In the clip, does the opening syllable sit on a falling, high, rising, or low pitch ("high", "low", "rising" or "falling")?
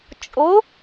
rising